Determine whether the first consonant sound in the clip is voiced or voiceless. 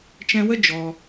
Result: voiceless